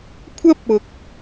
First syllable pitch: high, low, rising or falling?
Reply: high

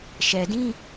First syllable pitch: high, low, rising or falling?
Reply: low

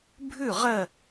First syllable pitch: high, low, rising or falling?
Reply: falling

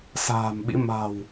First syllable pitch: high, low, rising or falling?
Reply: low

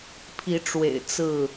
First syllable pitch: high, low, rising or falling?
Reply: rising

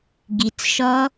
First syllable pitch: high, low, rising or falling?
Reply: low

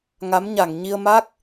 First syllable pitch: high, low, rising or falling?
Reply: rising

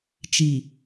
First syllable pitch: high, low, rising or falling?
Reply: low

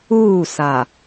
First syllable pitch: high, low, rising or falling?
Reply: falling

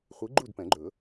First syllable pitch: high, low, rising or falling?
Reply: rising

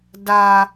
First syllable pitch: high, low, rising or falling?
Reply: high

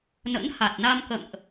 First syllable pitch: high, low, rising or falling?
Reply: rising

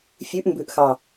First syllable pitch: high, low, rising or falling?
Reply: rising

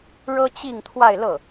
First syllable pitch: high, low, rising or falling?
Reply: high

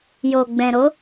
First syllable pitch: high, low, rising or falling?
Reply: low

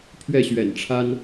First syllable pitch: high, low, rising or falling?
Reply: falling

